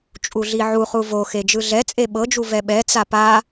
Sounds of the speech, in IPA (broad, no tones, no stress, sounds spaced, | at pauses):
t͡ʃʼ u ɮ i ʕ u χ u v o x e d͡ʒ ɯ ɮ ɛ t͡sʼ e ɓ ɤ d͡ʒ u v ɛ ɓ ɛ t͡s a p a